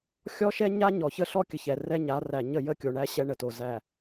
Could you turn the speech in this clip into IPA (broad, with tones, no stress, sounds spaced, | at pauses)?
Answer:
xʲ ɔ˦ ʃ ɛ˦ ɲ a˦ ɲ ɔ˨ ç ə˦ ɬ ɔ˦ kʲ ə˨ ç ɛ˨ r ɛ˦ ɲ a˨˦ r æ˨ ɲ ə˦˨ j ə˦˨ kʲ o˨ ɳ æ˦ ɕ ɛ˦ ɳ ə˨ t o˨ z æ˨